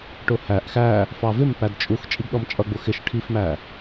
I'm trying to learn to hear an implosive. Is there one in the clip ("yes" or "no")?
yes